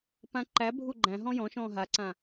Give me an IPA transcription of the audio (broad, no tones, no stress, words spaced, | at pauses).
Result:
pãǃæbʱu ɡ͡ǃæ̃ ɦɔ̃jɔ̃ʃɔ̃ː ɦaǀã